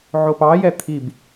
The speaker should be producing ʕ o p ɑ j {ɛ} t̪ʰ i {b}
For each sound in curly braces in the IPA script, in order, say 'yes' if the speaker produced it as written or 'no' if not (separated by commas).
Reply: yes, yes